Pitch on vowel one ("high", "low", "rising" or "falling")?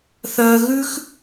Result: high